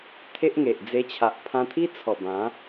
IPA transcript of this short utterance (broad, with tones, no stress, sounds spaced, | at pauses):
t̪ʰ e˦ ʔ ŋ e˨ ʔ d͡z e˧ t͡ɕʰ a˨ ʔ pʰ ã˧ t̪ʰ i˦ t͡sʰ ɔ˨˩ b ã˨˦